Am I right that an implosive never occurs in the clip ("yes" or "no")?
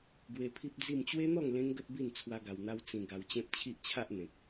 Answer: yes